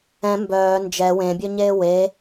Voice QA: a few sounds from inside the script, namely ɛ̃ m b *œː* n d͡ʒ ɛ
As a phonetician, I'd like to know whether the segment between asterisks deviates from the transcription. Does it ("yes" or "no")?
no